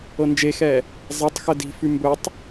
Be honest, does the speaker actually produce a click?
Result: no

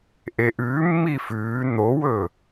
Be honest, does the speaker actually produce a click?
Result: no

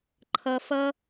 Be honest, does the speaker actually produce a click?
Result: yes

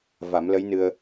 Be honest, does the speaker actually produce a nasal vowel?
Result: no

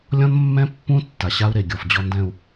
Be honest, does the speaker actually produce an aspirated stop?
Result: no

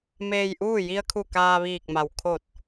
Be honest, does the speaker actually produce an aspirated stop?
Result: yes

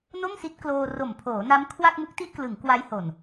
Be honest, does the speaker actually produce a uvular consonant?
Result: no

